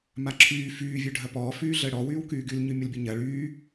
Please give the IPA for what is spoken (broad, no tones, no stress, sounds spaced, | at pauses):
m a ǁʰ yː f yː vʲ ø ɖʱ ɐ p ɔː f yː ɮ əː ɽ ɔ w yː w k yː ɡ y l ɲ y mʲ ʊ l bʲ ə ɲ ɐ ɭ yː